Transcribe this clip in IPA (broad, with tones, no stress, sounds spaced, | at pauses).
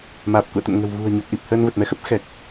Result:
m aː˨˩ p̚ k ṵ˧˨ ə̯ t̪ ə̰˧˨ n ŋ ə̤˨˩ w v ṳ˨˩ ə̯ ɲ o˨˩ p̚ ʔ i˨˩ p̚ h əː˧ n v ə˨˩ t̚ m ɛ˧ x ə˦˥ p̚ x ɛ˨˩ k̚